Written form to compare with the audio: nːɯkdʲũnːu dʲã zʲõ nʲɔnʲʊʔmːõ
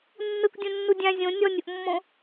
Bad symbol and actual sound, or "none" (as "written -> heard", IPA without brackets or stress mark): none